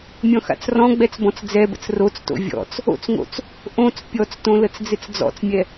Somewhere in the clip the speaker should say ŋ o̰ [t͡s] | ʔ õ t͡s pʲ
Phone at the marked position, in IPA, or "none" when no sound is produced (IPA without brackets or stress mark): t͡s